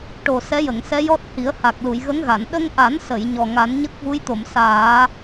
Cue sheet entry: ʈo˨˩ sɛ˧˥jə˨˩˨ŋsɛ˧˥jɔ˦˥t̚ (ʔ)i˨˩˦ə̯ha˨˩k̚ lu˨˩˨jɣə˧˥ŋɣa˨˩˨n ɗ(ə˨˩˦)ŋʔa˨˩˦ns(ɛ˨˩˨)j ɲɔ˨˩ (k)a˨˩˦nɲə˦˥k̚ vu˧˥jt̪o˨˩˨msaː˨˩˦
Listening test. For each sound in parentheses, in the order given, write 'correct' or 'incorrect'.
incorrect: h, incorrect: ə˧, incorrect: ə˨˩˨, incorrect: ŋ

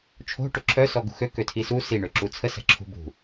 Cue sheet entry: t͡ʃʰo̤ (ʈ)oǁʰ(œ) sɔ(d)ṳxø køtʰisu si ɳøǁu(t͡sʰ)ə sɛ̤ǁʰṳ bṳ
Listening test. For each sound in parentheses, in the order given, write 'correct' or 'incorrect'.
correct, correct, incorrect: ɡ, correct

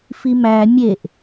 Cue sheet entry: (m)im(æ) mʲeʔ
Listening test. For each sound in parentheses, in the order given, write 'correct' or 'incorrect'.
incorrect: f, correct

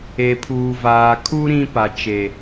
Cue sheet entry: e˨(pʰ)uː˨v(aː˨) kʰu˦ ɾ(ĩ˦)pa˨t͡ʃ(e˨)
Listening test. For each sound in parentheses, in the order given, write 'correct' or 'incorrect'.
correct, correct, correct, correct

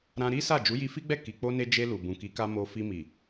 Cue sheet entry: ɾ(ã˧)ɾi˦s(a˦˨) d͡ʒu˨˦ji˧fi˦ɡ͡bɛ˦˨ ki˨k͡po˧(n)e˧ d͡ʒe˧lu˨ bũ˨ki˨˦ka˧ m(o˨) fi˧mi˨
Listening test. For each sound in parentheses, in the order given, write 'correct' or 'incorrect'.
correct, correct, correct, incorrect: o˧

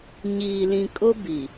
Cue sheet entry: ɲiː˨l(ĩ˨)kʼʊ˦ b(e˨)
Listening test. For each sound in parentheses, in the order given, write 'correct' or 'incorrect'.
correct, incorrect: i˨

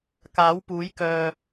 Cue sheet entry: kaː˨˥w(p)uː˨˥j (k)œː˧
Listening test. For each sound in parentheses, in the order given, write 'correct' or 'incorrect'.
correct, correct

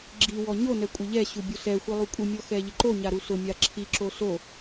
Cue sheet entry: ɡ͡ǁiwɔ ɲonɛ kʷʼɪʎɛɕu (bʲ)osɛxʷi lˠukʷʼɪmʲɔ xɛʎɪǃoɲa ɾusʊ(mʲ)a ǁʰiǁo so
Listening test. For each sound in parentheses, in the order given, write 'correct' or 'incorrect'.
correct, correct

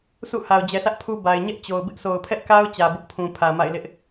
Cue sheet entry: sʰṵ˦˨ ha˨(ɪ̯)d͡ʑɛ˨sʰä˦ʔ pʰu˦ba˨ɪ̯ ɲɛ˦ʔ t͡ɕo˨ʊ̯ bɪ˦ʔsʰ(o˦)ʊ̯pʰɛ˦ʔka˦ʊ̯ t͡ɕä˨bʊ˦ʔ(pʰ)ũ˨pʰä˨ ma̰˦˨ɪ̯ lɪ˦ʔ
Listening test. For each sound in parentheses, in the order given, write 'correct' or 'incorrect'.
incorrect: ʊ̯, incorrect: o˨, correct

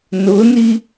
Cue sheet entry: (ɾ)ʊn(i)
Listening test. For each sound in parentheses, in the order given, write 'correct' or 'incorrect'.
incorrect: n, correct

